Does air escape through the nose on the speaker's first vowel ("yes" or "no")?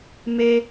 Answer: no